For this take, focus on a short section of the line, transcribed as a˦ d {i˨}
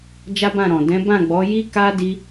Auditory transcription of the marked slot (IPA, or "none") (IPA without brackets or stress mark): i˦